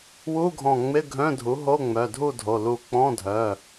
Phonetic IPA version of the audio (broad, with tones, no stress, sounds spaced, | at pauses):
w u˧˥˧ ɡʱ ɔ̃˧˩ ŋ͡m ɪ˧˥˧ ɡʱ œ̃˧˥˧ dʱ u˩˥ ɦ o˧˥˧ ŋ͡m œ˩˧˩ dʱ u˥˨ dʱ o˩˧˩ l u˧˩ k͡p ɔ̃˧˥˧ dʱ œ˩˧˩